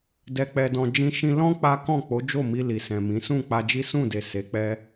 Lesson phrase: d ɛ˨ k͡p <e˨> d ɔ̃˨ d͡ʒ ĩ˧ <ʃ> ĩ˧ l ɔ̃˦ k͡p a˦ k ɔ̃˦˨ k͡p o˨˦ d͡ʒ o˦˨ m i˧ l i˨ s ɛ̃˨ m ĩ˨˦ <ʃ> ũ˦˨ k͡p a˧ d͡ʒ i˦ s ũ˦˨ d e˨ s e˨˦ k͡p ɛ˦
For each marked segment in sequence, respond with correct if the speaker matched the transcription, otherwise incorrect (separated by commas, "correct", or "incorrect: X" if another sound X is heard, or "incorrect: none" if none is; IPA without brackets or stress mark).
incorrect: ɛ˨, correct, incorrect: s